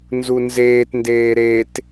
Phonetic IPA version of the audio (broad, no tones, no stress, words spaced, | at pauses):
nzunzeːtndeː ɾet